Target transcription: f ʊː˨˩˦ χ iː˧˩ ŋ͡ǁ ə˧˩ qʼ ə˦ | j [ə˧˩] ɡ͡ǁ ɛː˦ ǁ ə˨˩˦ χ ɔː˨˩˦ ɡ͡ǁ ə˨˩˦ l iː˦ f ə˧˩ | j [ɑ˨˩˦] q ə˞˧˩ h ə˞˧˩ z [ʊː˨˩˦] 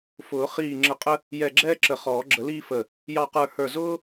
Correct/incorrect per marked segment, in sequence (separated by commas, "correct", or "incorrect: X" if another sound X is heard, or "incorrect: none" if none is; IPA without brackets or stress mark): incorrect: ɛ˧˩, incorrect: ɑ˧˩, incorrect: ʊː˦